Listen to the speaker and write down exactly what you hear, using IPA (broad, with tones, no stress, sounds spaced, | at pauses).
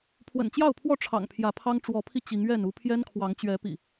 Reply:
pʰ w ə̰˨˩ n t͡ɕ j ɑ˥˨ ʊ̯ pʰ w ɔ˥˨ ʈ͡ʂʰ ɑ̰˨˩ ŋ pʰ j ä˨˦ pʰ ɑ˦ ŋ ʈ͡ʂ w ɔ˨˦ pʰ i˧ t͡ɕ i˨˦ ŋ ɥ ɛ˥˨ n u˦ pʰ j ɛ˦ n kʰ w ɑ˨˦ ŋ t͡ɕ ɥ ɛ˨˦ p ḭ˨˩